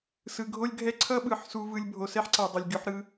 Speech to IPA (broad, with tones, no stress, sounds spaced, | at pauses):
s ɯ˨ ɡʱ o˦ lʲ ɡʱ ɛ˦ ǀʰ ʌ˦ ɓ ɯ˨ ħ s u˧ v ɯ˧ lʲ bʱ o˨ s ɛ˦ ħ ǀ a˨ dˤ ʌ˨ lʲ ɡʲ o˧ ħ ɾ ɯ˧